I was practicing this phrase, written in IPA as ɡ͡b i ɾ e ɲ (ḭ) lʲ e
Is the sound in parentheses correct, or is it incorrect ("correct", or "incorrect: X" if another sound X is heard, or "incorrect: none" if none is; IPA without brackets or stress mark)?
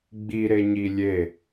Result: incorrect: i